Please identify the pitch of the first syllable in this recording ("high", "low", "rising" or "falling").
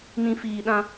low